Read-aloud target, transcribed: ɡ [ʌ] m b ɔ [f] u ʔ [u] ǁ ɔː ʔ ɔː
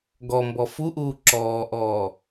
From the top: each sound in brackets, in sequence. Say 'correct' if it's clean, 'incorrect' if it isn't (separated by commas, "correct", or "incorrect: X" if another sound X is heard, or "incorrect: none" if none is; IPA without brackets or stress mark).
incorrect: ɔ, correct, incorrect: uː